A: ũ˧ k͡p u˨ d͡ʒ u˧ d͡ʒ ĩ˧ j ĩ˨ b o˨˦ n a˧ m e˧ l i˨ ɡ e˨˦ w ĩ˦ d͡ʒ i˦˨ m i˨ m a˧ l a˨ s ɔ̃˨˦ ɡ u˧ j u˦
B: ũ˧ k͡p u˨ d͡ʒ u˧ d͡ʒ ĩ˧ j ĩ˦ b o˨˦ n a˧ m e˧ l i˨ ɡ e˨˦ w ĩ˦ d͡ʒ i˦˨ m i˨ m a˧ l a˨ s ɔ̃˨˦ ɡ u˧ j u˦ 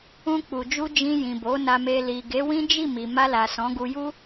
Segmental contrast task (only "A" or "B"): A